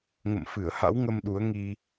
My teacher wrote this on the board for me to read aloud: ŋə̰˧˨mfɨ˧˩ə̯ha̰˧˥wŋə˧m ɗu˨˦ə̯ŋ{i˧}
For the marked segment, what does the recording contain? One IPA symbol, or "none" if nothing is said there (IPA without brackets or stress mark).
i˧